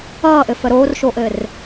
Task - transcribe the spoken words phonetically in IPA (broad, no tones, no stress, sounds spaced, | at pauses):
ʌː ʔ ɘ f ə ɾ oː r ʃ o ʔ ɘ r